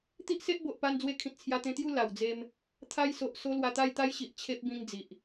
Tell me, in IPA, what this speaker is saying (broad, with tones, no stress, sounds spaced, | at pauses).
t̪ i˦ ʔ s e˦ ʔ b o˨ ʔ p a˧ n d͡z w e˧ kʰ ĩ˨ t̚ t͡sʰ j a˧ t̪ ẽ˧ t̪ j u˥˧ l a˨˩ w d͡z e˧ m | t̪ʰ a˧ j s o˨ ʔ s o˧ l w a˧ t̪ a˥˧ j t̪ a˦ j ɕ i˨ ʔ t͡ɕʰ e˦ p̚ b ĩ˧ ŋ d͡z i˨ ʔ